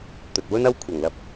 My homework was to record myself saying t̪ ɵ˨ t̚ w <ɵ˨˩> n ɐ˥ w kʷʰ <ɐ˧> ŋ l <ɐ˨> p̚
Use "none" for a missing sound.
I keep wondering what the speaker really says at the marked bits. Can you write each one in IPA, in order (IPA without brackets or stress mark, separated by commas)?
ɵ˥, ɐ˨˩, ɐ˧